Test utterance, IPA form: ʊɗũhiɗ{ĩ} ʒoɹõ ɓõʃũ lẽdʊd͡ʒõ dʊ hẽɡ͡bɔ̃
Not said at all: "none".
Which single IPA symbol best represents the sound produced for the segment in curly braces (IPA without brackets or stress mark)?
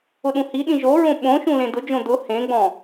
ĩ